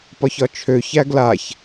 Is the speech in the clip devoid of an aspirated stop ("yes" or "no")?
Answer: no